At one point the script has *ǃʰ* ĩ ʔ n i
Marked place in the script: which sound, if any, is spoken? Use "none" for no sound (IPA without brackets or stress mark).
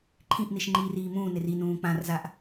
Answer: ǃʰ